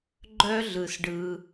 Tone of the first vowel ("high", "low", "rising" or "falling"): high